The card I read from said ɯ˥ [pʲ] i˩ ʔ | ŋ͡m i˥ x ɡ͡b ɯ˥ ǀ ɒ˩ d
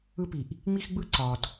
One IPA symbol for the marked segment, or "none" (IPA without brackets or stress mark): p